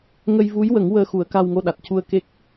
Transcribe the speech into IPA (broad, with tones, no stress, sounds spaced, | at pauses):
ŋ ə˧ j v u˧˥ j w ə˨˩˦ ŋ w əː˧ x u˨˩˦ ə̯ k a˧ w ŋ o˧ ɗ a˨˩ t̚ c u˧ ə̯ k e˦˥ k̚